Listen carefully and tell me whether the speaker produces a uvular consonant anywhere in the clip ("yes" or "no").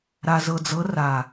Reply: no